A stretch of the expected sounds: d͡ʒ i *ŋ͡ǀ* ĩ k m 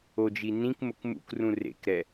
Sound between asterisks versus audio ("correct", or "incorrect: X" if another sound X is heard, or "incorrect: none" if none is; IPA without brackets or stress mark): incorrect: n